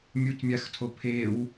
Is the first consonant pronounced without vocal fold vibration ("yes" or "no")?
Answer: no